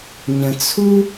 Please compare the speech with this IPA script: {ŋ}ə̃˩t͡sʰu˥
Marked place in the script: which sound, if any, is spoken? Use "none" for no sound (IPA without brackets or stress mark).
ɲ